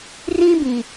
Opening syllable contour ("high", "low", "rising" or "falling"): high